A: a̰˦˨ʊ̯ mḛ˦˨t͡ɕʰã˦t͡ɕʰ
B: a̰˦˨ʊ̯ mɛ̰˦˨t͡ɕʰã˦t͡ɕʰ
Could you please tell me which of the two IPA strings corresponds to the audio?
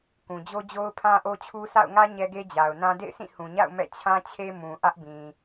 B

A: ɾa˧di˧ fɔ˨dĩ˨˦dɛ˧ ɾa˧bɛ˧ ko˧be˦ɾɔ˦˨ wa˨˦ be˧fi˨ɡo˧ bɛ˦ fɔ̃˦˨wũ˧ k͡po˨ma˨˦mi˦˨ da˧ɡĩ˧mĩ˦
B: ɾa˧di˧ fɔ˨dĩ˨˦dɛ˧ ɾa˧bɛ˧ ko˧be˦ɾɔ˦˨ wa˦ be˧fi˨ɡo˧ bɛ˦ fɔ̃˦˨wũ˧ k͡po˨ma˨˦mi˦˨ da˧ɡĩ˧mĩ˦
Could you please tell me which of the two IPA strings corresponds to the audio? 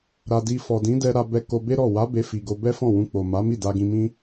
A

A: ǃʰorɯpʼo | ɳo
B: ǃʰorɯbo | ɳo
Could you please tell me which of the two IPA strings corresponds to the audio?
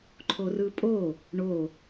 A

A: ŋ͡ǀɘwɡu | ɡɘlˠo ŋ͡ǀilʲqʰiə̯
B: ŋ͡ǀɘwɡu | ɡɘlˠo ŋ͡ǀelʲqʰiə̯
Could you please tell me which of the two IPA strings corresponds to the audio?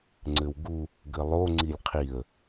A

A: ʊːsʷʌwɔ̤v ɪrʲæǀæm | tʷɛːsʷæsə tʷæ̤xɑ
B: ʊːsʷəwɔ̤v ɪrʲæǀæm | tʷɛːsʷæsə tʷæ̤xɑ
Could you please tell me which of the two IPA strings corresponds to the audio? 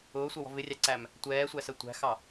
A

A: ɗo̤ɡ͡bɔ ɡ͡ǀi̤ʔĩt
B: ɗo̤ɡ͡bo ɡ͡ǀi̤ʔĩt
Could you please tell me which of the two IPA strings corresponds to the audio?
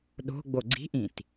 B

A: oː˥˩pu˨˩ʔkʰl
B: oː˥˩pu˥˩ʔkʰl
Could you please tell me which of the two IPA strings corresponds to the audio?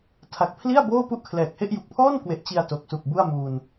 B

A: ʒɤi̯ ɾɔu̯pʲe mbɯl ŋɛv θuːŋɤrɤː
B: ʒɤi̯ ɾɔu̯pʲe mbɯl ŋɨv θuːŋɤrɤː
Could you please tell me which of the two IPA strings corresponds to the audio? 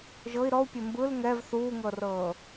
A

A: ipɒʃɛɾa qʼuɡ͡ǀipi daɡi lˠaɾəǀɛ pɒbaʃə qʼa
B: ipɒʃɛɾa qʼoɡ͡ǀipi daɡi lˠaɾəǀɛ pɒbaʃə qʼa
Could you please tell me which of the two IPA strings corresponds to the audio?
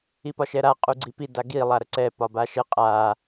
A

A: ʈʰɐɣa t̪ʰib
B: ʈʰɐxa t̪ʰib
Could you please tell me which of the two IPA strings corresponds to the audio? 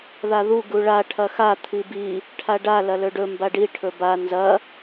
B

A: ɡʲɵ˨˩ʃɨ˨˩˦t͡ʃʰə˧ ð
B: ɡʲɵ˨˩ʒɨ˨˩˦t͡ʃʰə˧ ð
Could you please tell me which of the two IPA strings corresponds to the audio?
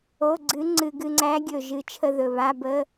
B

